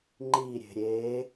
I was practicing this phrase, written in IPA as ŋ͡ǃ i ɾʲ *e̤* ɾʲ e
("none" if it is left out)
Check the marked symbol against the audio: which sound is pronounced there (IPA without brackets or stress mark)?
e̤